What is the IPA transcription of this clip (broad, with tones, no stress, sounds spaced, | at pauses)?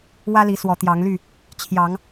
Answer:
w ä˦ l i˨˦ s w ɔ˨˦ t̪ j ɑ˨˦ ŋ l y˥˨ | t͡ɕʰ j ɑ˨˦ ŋ